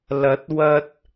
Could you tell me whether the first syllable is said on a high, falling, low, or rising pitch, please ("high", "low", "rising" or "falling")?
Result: rising